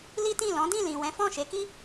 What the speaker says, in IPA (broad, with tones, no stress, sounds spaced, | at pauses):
l i˦ t ĩ˦˨ l ɔ̃˨˦ d ĩ˦˨ l ĩ˨ w ɛ̃˨˦ f ɔ̃˦˨ ʃ e˨˦ k i˦